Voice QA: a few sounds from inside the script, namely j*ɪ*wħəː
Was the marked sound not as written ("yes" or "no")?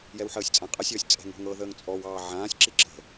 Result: yes